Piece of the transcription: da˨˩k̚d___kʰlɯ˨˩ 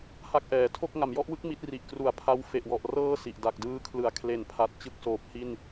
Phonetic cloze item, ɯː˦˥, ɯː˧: ɯː˧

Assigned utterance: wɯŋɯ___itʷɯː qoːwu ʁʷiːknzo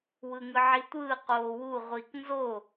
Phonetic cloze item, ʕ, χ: ʕ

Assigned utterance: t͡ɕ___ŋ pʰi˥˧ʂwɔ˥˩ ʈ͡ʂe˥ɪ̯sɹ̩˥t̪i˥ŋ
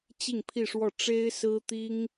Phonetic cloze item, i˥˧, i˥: i˥˧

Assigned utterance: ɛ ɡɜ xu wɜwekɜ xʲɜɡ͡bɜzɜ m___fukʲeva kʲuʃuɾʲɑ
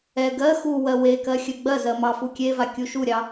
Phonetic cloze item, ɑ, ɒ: ɑ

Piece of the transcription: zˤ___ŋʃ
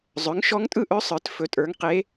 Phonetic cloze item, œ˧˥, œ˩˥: œ˩˥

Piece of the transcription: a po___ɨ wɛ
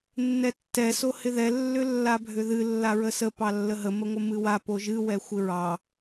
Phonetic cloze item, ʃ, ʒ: ʒ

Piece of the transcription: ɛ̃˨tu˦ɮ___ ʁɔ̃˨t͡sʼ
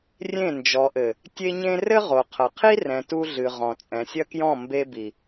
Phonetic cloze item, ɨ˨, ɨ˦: ɨ˨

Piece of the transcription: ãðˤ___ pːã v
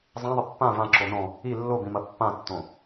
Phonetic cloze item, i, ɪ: ɪ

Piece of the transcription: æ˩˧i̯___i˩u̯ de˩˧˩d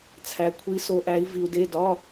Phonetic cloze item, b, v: v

